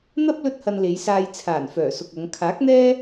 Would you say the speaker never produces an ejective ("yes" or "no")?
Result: yes